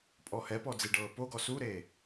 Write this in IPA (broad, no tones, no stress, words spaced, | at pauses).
pʼɔhɛpɔ d͡ziɖɤːpoɡɔ suɾe